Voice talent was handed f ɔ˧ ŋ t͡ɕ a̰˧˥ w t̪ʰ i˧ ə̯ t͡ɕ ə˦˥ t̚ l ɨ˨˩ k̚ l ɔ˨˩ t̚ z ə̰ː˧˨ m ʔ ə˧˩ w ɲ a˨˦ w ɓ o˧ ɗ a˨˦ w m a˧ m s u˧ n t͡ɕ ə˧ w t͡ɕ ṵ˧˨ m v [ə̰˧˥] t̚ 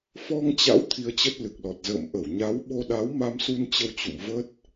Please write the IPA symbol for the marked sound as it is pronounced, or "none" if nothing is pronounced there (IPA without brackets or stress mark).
ə˦˥